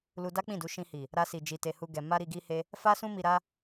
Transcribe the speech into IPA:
l u˧ d a˦ k͡p ĩ˦˨ d u˨˦ ʃ ĩ˧ h i˨ | ɾ a˧ s i˨ d͡ʒ i˨ t e˧ h u˦ ɡ ɛ˧ m a˦ ɾ i˧ ɡ i˦ h e˦ | f a˦ s ũ˦ m i˧ ɾ a˦

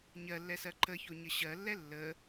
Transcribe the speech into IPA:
ɲ ɜ lː ɛ s ɜ ǃ ə ç o ɲ ə ɕ ɜ lː ɛ lː ə

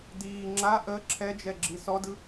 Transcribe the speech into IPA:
d iː ŋ͡ǁ a ʔ ə ǁʰ ɛ d͡ʒ ɛ ɡ͡ǁ i s ɔ d ɯ

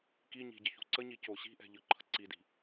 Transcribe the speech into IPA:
k i ɲ i̤ ɟ ə ç ṳ ǀ ə ɲ i c o ɕ i̤ ʔ ɛ̤ ʎ ɯ ǃʰ ə ǀ i d i̤

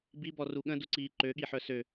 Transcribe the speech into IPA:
b i b ɔ r u ɠ ə̃ d u ǀ iː ǃ ø ɠ i ħ œ s ø

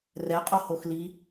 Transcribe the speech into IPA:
r ɛ qʼ o h o x l i

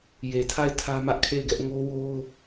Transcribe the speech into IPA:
j e˨ tʰ a˦˨ ɪ̯ tʰ ä˦ m ä˦ ʔ kʰ e˦˨ ɪ̯ ɡ ɛ˦ ʔ ŋ o˦ w o˦ ʊ̯

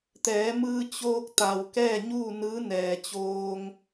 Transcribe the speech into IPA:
t̪ ɛː˩˧ m ɯː˧ t͡ɕ oː˧ k̚ t̪ a˩ w k ɛː˥˨ ɲ uː˥˨ n ɯː˧˥ n ɛː˩ t͡ɕ oː˧ ŋ

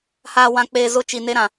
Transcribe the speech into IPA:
h aː˨ w ã˨ k͡p eː˨ z ʊ˦˨ t͡ʃ i˨ n e˦ ɾ ã˨

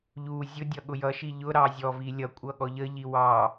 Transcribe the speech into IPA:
ʎ u zʲ ʊ dʲ ʌ ɠ ʊ j ʌ ʃ i ʎ ʊ ɾ ɑ zʲ ɔ v i lʲ ʌ kʷʼ ʌ ɠ ɔ ʎ ə ʎ i w ɑ

